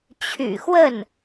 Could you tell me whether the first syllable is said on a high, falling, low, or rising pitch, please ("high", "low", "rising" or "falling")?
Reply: low